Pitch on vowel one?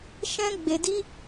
high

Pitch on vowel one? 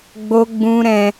high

